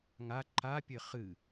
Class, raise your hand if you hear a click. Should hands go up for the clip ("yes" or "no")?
yes